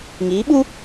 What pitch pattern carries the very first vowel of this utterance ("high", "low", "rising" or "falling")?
rising